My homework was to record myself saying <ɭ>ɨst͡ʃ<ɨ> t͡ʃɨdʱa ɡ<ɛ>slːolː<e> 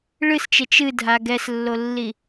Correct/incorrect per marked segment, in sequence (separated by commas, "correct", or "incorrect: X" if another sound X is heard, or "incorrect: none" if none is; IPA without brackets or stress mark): correct, incorrect: e, correct, incorrect: i